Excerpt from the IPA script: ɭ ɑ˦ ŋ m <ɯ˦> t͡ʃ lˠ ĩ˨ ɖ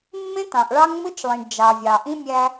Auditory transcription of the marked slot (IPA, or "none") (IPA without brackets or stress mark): ɯ˦